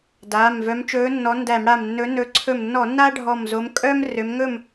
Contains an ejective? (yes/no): yes